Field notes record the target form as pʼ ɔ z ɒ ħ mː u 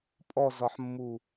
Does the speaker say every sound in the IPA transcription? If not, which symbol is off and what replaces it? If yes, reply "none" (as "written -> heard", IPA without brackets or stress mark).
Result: none